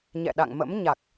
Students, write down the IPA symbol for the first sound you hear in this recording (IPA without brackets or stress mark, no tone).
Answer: ɲ